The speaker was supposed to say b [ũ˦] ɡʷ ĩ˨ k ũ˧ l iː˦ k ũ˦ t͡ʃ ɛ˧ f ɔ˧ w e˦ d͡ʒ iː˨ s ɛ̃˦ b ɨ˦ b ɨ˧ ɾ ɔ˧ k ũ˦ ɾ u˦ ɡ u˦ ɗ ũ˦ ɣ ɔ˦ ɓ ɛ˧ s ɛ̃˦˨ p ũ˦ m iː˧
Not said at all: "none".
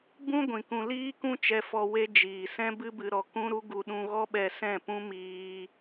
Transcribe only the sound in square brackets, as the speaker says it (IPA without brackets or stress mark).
ũ˦